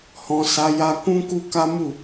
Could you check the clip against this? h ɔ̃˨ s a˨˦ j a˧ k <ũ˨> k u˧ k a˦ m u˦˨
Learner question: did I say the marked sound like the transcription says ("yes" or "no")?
no